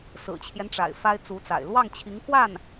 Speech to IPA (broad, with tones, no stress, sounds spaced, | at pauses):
s ɹ̩˨˩ t͡ɕʰ j ɛ˦ n ʈ͡ʂ a̰˨˩ ɪ̯ f a˥ ɪ̯ t͡s u˧˥ t͡s a̰˨˩ ɪ̯ l w ɑ˥˩ ŋ t͡ɕʰ i˧˥ ŋ k w a˥˩ n